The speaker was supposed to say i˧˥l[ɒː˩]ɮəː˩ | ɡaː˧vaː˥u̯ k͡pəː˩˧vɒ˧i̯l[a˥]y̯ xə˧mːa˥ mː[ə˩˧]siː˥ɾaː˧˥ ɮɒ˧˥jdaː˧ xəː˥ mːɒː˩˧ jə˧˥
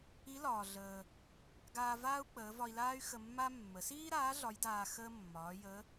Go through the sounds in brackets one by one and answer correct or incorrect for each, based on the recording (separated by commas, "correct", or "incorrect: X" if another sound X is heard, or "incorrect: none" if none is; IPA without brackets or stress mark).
correct, incorrect: aː˥, correct